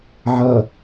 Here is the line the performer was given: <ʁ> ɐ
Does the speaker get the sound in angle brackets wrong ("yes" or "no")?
yes